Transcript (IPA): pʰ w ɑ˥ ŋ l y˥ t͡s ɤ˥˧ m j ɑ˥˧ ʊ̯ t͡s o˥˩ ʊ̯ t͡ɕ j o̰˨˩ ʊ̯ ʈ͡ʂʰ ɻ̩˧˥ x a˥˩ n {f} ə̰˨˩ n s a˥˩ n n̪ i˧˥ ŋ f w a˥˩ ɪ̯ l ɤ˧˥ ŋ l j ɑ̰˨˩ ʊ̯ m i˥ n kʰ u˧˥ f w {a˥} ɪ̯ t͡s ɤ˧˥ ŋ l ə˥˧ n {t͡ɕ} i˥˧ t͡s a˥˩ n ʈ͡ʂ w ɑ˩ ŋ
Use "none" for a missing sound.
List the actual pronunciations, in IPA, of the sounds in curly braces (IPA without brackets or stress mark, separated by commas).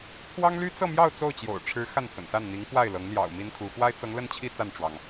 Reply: f, a˥, t͡ɕʰ